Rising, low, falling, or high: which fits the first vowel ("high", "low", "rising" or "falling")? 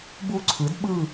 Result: falling